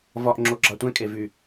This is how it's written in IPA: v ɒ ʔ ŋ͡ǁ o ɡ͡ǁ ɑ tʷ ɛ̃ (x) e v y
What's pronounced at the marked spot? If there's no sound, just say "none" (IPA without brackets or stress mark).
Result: kʼ